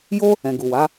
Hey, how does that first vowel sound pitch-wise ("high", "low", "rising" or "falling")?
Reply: high